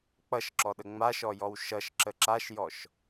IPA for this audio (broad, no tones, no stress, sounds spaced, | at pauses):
k͡p ʌ ʃ ǁ ɔ ɗ ə ŋ͡m a ʃ ɔ j ɔ w ʃ ʌ ʃ ǁ ə ǁ a ʃ j ɔ ʃ